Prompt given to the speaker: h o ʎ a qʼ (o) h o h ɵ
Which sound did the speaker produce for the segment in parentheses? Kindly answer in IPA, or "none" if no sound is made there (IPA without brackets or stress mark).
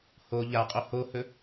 o